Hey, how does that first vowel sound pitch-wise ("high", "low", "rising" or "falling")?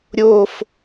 falling